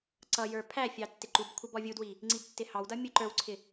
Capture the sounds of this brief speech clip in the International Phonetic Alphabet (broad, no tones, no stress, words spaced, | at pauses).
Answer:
ǀʌjə˞ pʰæfʲɑ tːɪǃubkʷʰʌ bɔvʲudwi | ŋ͡ǀibtːɪhɑwdʌ mʲuǃə˞wǀʰɪ